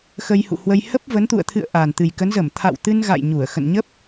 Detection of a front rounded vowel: absent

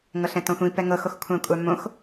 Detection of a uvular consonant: absent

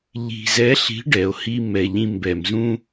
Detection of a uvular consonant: absent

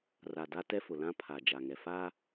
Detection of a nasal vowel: present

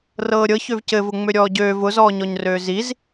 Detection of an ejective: absent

